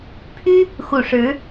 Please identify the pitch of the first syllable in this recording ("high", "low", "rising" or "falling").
high